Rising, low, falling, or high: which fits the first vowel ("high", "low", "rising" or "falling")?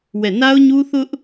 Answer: falling